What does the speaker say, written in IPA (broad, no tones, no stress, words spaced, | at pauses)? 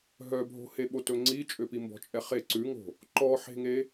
ɦœbʱo̤heɓo tɵŋ͡ǀit͡ʃʼøpi mbɔ̤t͡ʃʼɛχe ǀʉŋo̤ | ǃɔħe̤ŋe